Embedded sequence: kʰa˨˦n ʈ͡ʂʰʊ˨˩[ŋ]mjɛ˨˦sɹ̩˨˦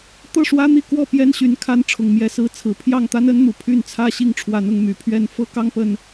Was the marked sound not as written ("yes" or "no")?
no